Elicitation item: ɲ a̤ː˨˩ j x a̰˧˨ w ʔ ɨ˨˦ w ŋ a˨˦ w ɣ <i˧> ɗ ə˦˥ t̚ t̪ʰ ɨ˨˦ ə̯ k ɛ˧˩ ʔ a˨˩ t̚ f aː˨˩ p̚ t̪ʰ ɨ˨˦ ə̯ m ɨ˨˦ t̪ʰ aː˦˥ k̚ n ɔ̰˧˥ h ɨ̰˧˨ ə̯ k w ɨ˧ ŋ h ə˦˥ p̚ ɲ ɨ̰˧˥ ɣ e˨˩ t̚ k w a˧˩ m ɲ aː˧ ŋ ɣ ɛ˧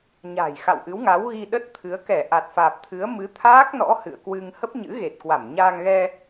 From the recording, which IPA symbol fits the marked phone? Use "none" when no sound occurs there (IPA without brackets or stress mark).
i˧